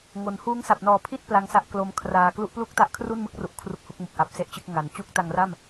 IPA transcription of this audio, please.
ŋ o˩˦ n h uː˦˥ ŋ s a˨˩ p̚ n ɔː˨˩ pʰ i˥˩ t̚ p l a˦˥ ŋ s a˦˥ ʔ k l o˦˥ m kʰ r aː˧ k l u˦˥ ʔ p l u˥˩ k̚ t a˦˥ ʔ kʰ r u˥˩ n m ɯ˥˩ k̚ r u˨˩ ʔ kʰ r u˦˥ k̚ h u˦˥ k̚ m u˨˩ k̚ ʔ a˦˥ p̚ s e˥˩ ʔ t͡ɕ ɯ˥˩ k̚ ŋ a˨˩ n t͡ɕ u˦˥ k̚ t a˧ ŋ r a˥˩ m

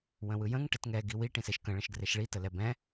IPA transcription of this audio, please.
w ə̃ w ɯ j ə̃ ŋ ʈ ɘ t ŋ ɛ ɡ i w i ʈ ĩ s e ʃ k ə̃ ɭ ə̃ ʃ ɡ r e ʃ ɭ i t ə l ɛ b ɛ̃

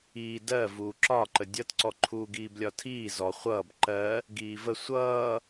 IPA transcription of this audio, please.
iː d ɜ v uː ǁ ɒ ǃ ə dʲ ʌ t ǀ ɔ ǃʰ uː ɡ iː b lʲ ɒ tʰ iː z ɔ χʷ ʌː b ǃ ɜ | ɡ iː v ə sʷ ʌː

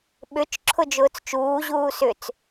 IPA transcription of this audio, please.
ɓ ʏ t͡ʃ ǁʰ ʊ d͡ʒ ʊː t͡s t͡ʃ uː ʑ uː s ʏ t͡s

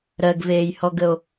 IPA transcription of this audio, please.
ɾ ɜ ɡ v eː j h ɔ ɡ ə o̯

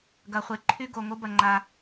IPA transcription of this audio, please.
ɡ ɐ˨ χʷ e˨ ǃʰ y˦ ɡ o˨ ŋ o˦ b ɐ˨ ŋ͡ǃ a˨

